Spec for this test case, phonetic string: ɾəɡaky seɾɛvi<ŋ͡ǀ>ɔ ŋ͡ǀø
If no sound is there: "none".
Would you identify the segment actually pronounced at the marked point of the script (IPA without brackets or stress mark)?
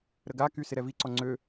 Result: ǀ